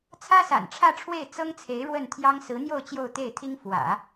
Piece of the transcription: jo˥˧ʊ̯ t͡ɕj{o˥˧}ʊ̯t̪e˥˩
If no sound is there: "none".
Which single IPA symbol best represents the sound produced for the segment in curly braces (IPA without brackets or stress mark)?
o˥˧